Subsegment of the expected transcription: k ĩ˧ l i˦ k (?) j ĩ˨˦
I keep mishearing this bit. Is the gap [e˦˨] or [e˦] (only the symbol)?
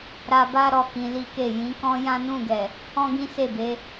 e˦˨